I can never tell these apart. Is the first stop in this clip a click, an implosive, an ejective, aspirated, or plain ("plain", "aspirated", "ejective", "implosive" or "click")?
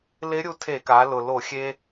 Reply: aspirated